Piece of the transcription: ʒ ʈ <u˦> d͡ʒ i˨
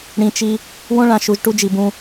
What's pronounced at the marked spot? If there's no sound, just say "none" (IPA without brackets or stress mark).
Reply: u˦